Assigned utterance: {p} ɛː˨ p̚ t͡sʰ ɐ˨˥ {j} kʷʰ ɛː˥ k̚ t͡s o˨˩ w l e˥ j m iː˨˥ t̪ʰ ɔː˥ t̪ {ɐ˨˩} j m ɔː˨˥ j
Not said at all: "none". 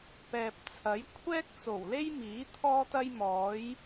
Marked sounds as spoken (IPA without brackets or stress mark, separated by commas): p, j, ɐ˥